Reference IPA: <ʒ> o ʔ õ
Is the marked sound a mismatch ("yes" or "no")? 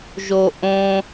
no